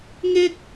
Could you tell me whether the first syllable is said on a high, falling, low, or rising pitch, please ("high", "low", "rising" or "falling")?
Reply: high